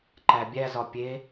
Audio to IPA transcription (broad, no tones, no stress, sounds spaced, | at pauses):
ǃ æ bʲ æ z ɒ pʲ e